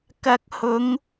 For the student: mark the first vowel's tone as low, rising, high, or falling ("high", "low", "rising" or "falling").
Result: rising